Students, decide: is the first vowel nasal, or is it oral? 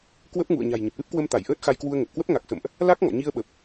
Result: oral